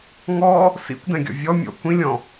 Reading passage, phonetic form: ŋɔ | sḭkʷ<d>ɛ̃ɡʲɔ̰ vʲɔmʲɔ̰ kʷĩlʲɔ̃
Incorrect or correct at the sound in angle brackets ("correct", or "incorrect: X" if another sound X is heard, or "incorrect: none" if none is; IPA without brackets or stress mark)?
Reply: correct